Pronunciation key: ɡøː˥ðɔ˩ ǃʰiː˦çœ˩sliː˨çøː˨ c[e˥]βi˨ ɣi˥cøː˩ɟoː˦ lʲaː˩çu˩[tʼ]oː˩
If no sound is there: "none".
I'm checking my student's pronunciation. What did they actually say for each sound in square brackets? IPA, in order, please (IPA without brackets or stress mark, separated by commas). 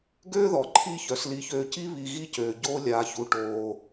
i˥, ʈ